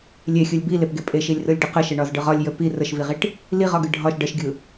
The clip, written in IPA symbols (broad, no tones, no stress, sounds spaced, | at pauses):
lʲ e xʲ ɯ lʲ b i l e p ɡ e pʼ e ʃ i lʲ r ɯ lʲ ɖ ə q ə ʃ e ɳ ɒ z ɖ ɯ ʁ ɒ lʲ j ə p i r ə ʃ v i ʁ i ʈ | l i ʁ ɒ ɡ ɯ ɖʱ ɒ ʃ ɖ ə ʃ ɡʲ ɯ